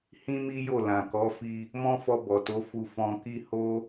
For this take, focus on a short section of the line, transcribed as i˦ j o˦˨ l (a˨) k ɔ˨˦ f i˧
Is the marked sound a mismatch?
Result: yes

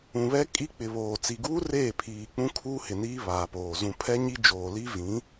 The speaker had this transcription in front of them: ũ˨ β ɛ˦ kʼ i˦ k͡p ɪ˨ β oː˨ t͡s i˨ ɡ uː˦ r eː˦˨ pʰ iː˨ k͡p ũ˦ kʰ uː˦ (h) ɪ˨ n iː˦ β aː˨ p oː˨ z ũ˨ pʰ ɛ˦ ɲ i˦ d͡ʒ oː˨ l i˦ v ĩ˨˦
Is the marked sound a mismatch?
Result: no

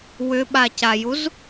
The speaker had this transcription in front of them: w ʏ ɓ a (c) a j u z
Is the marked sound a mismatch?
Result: no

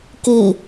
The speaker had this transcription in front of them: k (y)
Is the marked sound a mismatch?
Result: yes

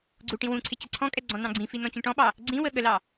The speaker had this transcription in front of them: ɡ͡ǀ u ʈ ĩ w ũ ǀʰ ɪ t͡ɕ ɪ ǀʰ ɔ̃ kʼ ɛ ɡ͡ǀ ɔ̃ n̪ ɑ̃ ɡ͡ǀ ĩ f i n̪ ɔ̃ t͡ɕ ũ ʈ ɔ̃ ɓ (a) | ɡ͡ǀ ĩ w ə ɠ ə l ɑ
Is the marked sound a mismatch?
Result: yes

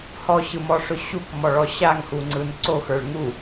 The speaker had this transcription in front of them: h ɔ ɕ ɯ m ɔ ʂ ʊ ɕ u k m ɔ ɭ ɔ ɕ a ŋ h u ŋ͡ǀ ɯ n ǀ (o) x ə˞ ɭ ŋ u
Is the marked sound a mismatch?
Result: no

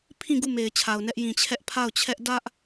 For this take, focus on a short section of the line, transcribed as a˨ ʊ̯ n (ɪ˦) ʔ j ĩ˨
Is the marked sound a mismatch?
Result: yes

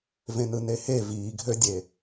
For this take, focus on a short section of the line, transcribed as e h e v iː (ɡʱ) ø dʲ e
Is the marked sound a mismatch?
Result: no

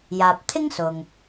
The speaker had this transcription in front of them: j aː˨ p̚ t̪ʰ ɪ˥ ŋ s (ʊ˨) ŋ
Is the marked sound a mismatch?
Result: no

